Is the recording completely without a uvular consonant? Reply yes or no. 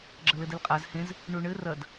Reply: no